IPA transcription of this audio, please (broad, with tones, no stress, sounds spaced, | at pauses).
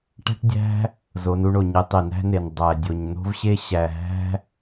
ʈ æ̤˥ ʈ dʲ æ̤˥ | z o˨˦ n u˨˦ ɳ o˩ ɲ i˨˦ tˤ i˩ n æ̤˥ n e˩ n dˤ æ˩ dʲ o˩ ɲ n̪ o̤˥ v ɕ e˥ ɕ æ˩ ɦ æ̤˥